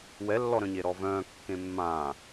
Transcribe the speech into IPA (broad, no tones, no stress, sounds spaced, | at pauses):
w ɛ lː ɔ ɾ œ̃ ɲ e ɾ ɔ v œ̃ː kː ẽ mː ãː